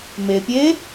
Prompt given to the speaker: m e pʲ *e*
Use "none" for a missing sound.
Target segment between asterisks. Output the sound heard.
e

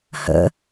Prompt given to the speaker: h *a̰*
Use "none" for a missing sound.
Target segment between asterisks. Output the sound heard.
ə̰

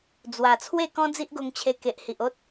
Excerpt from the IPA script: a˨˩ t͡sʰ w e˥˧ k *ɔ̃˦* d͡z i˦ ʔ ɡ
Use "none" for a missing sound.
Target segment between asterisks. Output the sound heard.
ɔ̃˦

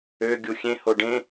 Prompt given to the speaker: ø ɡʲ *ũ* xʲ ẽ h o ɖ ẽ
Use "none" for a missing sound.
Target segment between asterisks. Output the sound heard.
u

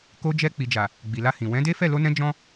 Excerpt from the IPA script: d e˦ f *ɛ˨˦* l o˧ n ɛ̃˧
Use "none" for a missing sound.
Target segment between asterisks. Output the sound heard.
ɛ˦˨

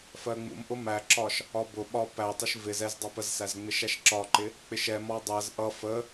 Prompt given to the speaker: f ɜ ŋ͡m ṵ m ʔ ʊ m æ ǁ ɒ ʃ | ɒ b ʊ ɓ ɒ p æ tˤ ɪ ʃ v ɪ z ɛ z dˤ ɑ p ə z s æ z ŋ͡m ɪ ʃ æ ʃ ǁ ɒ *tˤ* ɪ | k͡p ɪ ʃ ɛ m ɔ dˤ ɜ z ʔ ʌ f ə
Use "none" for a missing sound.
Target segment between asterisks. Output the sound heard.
ǃ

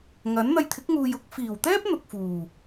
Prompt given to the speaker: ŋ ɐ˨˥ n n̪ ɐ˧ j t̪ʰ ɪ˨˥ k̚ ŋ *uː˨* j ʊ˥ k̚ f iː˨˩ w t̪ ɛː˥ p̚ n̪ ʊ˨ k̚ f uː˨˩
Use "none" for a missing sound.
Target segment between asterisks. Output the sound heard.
uː˨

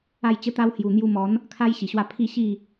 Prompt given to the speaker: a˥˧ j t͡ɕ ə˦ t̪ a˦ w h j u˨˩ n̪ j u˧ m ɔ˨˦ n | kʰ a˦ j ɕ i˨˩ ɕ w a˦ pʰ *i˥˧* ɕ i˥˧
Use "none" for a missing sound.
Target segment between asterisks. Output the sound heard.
i˥˧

